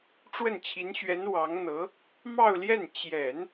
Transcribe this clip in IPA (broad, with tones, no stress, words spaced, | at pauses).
ʈ͡ʂwə˥˩nt͡ɕʰi˧˥nɕɥɛ˧˥n wɑ˧˥ŋn̪ɤ˧˥ | mɑ˥˧ʊ̯ljɛ˥˩n t͡ɕjɛ˨˩˦n